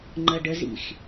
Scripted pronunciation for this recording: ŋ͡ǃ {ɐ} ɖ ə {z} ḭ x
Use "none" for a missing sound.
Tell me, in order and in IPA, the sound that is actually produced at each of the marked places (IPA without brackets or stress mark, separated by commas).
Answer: ɐ, z